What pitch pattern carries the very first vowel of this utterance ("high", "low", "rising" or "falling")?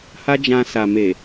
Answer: high